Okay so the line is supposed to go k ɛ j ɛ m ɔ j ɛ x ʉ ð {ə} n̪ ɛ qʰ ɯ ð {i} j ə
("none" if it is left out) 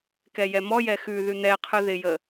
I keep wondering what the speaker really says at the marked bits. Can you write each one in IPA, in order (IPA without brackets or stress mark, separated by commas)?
ʉ, ɪ